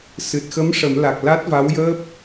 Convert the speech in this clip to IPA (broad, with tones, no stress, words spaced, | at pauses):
sɨ˨˩t̚xə˧˥m ʂə˨˩˦mla˨˩k̚ la˦˥t̚va˧˥wjəː˦˥p̚